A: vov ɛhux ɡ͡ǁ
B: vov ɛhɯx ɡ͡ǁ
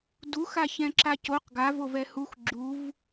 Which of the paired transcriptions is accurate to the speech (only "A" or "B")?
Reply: A